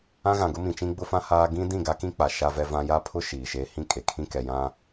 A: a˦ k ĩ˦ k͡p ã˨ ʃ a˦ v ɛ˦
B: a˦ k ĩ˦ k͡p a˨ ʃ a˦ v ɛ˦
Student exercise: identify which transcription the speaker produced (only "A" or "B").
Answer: B